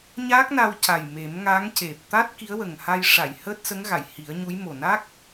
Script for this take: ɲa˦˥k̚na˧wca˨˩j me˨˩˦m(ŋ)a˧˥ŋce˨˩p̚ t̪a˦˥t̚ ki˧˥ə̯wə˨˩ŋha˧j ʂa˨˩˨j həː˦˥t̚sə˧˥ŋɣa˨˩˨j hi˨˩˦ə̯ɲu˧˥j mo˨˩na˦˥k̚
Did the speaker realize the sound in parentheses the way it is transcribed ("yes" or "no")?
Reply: yes